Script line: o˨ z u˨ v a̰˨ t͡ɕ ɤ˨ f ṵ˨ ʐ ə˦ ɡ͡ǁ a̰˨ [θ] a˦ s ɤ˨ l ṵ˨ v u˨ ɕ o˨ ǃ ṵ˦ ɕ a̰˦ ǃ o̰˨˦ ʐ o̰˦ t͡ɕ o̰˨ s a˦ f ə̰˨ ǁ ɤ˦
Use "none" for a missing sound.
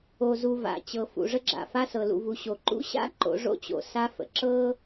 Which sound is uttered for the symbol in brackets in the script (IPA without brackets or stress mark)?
f